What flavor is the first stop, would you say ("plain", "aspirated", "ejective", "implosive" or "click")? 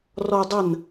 plain